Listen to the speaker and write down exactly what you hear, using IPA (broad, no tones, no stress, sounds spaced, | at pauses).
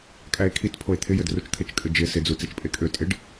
kʼ æ e̯ kʰ i t pʰ o e̯ t̪ʰ ɪ j ɘ d r u t͡ʃ t̪ʰ ɘ t͡ʃ kʼ ɘ d͡ʒ ɪ s ɪ d͡z u t͡s e t͡ʃ pʼ e kʼ ø tʼ ɪ ɖ